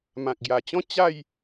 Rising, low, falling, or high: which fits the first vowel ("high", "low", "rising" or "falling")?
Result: low